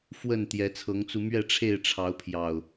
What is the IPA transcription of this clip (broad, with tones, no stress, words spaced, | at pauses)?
fwə˥˨n t̪jɛ˨˦t͡sʰɤ˨˦ŋt͡su˧ mɥɛ˥˨ ʈ͡ʂʰe˥˨ɪ̯ʈ͡ʂʰɑ˨˦ʊ̯pʰjɑ˨˩ʊ̯